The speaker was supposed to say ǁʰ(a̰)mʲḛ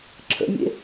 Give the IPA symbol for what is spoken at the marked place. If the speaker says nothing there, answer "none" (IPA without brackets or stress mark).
ə̰